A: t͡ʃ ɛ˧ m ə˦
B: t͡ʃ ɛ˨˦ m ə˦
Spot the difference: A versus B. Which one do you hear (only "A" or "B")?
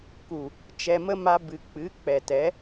A